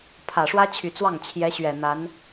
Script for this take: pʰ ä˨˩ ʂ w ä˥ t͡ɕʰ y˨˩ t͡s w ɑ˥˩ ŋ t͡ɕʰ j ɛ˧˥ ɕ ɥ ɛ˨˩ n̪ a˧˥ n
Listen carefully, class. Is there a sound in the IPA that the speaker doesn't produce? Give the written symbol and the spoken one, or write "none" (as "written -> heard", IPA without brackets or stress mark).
none